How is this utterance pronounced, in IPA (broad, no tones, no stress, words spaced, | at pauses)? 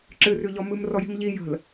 ǁɨrʉʎɔ mɨmrɔji̤m ʎi jə̤l